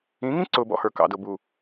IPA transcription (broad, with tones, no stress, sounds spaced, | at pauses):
ĩ˨˦ ŋ ĩ˦ ǀ ʊ˨ b ɔ̰˦ h ə˞˨ k ɑ̰˨ d ʊ˨ b u˨